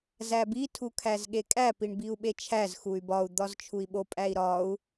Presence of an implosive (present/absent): present